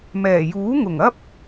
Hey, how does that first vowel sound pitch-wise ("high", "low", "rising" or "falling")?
low